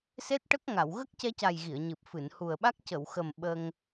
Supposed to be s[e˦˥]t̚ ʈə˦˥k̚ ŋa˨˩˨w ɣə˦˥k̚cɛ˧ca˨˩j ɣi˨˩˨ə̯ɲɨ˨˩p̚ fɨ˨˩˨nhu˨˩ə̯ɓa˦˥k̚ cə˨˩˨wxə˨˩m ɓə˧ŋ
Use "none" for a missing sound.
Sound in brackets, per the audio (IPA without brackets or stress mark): e˦˥